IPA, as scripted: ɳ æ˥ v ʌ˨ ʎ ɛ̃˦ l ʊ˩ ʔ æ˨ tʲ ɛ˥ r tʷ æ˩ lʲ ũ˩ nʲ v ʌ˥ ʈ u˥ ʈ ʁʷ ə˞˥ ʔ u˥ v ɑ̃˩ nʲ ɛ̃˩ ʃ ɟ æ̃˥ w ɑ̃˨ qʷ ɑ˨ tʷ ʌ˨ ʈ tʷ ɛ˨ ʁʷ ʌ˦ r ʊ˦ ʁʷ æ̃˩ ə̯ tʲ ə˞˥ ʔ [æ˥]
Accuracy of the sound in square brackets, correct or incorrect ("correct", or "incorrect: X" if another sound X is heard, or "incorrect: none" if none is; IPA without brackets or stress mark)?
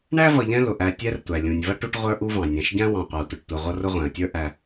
incorrect: æ˨